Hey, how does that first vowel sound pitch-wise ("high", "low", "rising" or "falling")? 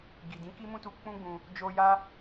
low